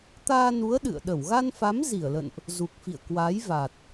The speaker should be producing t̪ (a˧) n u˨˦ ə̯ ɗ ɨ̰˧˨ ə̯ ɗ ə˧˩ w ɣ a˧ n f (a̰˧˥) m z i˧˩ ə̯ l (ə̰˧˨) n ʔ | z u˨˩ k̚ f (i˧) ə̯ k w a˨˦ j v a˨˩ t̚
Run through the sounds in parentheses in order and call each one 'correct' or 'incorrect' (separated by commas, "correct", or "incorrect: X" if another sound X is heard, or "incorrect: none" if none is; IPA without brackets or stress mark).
incorrect: aː˧, incorrect: a˨˦, correct, incorrect: ḭ˧˨